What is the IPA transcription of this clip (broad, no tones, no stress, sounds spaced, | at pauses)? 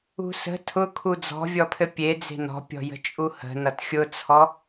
ṳ s ə̤ tʰ ʊ kʰ u d͡z ɔ̤ vʲ ɔ pʰ ɘ pʲ e d͡z e̤ n ɔ̤ pʲ ɔ̤ j ə̤ t͡ʃʼ u h ə̤ n ʌ t xʲ ʊ t͡sʰ ɔ